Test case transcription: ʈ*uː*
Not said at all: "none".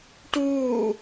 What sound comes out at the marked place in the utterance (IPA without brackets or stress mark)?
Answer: uː